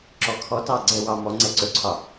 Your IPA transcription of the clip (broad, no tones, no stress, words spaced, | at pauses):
ǁɔkʰɔtɑ ɡ͡ǀɛwɑ mɔ ŋ͡ǀɛǀɵǀʰɒ